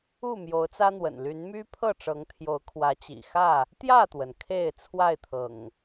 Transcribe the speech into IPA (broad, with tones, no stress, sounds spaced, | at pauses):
u˥˨ m j o˨˦ ʊ̯ t͡s ä˦ n̪ w ə̰˨˩ n l y˨˦ n m y˦ pʰ ɤ˥˨ ʈ͡ʂ ɤ˨˦ ŋ t̪ʰ j o˨˦ ʊ̯ kʰ w ä˨˦ t͡ɕ ḭ˨˩ x ä˥˨ | t̪ j ä˥˨ t̪ w ə˩ n kʰ e˥˨ ɪ̯ t͡sʰ w a˥˨ ɪ̯ t̪ʰ ɤ̰˨˩ ŋ